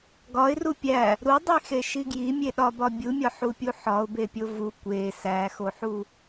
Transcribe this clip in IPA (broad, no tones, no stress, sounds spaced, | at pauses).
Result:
ɡ ɒ ɪ̯ r u pʲ æ | ɾ u dˤ i x e ʃ i ɡ j i mʲ e ɗ ɒ b ɒ bʲ u mʲ ɒ ħ u pʲ u ħ ɒ ʊ̯ b e pʲ o v u kʷ e s æ x o ħ u